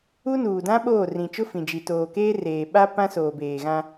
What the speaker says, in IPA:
u˦ n uː˨ d ã˦ ɓ oː˦˨ r ĩ˨ t͡ʃ ʊ˦ f ĩ˨ d͡ʒ i˨ t oː˨ k eː˦ r eː˨ ɓ a˦ p ã˦ s oː˨ b eː˨ ɣ ã˦

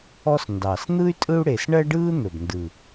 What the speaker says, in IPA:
ɔ˥ s n d ɑ˨˩ s n̪ ɯ˥ y̯ tʼ ɯ˥ u̯ ɽ e˨˩ s ɳ ɜ˥ ɖ ɯː˥ n̪ ɵ˨˩ b n d ɯ˨˩

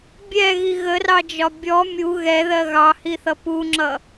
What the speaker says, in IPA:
bʲ ɛ ɣ i ɣ ə r ɑ d͡ʒ ɒ bʲ ɔ mʲ u ɣ ɛ ð ɜ ɣ ɑ h i θ ʌ p u ŋ͡ǁ ʌ

